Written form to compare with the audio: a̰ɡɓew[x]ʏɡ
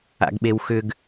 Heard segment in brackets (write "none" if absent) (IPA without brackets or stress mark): x